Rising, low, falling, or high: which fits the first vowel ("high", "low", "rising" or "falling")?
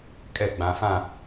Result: falling